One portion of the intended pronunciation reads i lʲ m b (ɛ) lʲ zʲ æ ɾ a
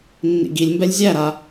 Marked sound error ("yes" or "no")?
no